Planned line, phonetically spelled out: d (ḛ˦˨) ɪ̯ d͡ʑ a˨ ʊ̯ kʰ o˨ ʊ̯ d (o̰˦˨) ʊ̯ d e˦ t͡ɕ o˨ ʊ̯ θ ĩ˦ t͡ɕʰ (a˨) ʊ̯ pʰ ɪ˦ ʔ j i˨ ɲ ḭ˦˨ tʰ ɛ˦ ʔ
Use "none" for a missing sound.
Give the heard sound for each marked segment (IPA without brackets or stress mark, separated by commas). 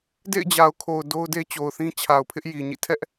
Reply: ḛ˦˨, o˦, a˨